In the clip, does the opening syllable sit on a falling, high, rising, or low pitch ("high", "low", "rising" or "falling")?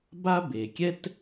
high